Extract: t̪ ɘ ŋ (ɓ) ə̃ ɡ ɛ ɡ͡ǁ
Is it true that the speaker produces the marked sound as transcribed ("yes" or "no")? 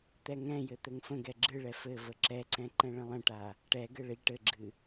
no